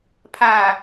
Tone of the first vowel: low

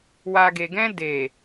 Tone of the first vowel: low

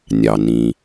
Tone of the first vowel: low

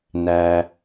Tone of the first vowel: low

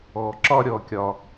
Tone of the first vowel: low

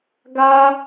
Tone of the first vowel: high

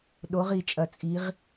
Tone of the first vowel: rising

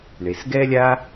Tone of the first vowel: low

